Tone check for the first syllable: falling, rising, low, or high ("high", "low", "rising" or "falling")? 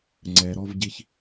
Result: low